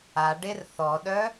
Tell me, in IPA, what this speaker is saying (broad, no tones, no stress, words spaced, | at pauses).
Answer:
a ɖerθɔɗœ